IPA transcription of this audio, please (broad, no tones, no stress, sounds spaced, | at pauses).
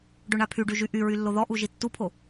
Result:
ɖ ø ɳ a pʰ y ɖ y ʒ y ʔ y ɹ y lː o ð ɔ ʔ u ʒ i tː u pʰ o